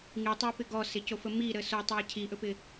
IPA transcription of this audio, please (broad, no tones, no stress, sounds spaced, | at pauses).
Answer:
ŋ i tˤ ɜ p ɪ ɡ ɔ s ɪ c o f ə m i ɾ ə s o tˤ a cʰ i ʔ ɵ p ɪ